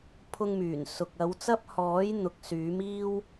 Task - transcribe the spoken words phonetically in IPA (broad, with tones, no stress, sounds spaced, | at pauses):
pʰ ʊ˥ ŋ m yː˨˩ n s ʊ˨ k̚ ɐ˨˧ w t͡s ɐ˥ p̚ h ɔː˨˥ j n̪ ʊ˨˥ k̚ s yː˨˥ m iː˥ w